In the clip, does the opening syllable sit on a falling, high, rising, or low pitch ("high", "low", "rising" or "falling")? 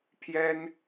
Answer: high